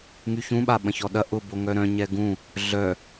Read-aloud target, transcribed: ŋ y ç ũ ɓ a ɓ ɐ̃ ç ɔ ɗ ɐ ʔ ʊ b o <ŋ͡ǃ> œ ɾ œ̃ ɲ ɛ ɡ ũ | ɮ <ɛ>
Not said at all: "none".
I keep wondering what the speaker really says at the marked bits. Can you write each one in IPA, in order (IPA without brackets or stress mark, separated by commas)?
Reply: ŋ, œ